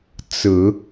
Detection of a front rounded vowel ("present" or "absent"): absent